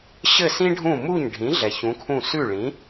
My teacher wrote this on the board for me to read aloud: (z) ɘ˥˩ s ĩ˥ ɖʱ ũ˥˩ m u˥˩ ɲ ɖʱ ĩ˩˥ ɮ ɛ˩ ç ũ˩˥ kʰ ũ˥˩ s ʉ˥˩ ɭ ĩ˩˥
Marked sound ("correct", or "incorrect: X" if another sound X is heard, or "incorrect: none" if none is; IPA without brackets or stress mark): incorrect: ɕ